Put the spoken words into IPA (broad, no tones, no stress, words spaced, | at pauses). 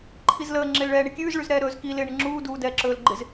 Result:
ǃʰizləː ŋ͡ǁɪːlɭɛːɳɪkʲʉːz ɭʉzɾɛːɾɵːzki lɪːɳɪŋ͡ǁuː duːdɛːǁɵːlɡ͡ǃɪz